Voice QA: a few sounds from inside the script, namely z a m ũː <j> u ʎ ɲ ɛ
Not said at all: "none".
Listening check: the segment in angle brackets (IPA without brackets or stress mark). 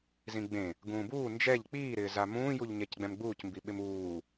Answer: j